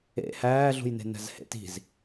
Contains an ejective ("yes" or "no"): no